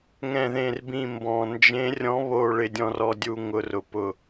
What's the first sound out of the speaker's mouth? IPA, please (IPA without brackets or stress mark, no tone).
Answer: ŋ